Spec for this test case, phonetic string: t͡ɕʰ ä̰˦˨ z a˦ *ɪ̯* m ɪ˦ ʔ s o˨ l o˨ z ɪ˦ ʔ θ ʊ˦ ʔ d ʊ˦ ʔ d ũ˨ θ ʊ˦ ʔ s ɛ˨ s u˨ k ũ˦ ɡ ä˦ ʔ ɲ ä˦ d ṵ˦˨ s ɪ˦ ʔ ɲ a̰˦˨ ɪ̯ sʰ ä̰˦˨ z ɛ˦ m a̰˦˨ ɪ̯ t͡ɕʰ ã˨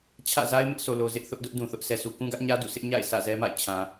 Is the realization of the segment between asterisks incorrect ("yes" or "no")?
no